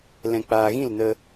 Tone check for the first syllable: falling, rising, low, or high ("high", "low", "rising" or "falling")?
low